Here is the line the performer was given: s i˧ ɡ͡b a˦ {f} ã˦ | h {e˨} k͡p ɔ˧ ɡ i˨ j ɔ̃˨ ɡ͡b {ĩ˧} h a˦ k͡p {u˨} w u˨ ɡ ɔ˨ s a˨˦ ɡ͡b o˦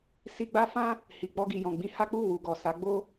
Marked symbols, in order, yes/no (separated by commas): yes, no, yes, no